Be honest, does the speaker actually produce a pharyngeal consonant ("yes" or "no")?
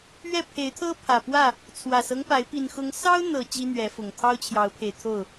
no